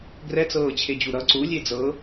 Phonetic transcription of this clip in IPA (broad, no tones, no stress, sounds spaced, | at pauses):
ɡ r ɛ t͡s ɤː t͡ɕʰ e d͡ʑ u ɾ ʌ ǀ u lʲ e d͡z ɤ